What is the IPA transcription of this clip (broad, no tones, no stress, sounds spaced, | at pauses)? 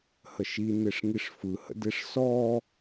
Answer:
h ə ʃ i n e ʂ ŋ i ʂ f ɯ h ə̰ d e ʂ s ɔ